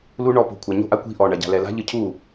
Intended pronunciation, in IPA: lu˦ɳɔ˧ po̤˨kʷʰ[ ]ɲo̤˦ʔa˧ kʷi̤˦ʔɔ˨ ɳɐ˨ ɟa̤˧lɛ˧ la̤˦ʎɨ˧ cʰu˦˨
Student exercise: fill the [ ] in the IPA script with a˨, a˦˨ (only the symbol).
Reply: a˨